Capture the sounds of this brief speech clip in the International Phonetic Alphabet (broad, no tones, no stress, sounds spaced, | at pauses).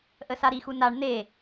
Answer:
ʔ ə s a ɾ i x u n a ɳ n̪ e